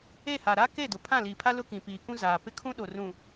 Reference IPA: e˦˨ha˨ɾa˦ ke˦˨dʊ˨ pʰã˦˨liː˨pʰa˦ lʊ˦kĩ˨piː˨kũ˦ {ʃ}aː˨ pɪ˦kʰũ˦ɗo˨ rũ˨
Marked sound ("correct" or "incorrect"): incorrect